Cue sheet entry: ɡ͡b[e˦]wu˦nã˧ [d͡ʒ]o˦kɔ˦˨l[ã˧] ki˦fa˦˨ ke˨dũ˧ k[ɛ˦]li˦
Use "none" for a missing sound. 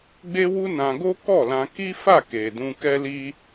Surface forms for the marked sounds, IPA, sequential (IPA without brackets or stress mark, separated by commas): e˦, ɡ, ã˧, ɛ˦